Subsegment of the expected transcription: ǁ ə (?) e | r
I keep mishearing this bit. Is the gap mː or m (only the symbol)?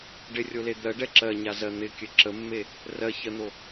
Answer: mː